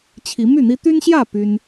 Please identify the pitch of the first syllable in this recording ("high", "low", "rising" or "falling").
rising